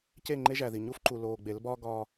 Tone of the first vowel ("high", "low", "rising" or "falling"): falling